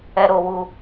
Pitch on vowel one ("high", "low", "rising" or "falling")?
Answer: high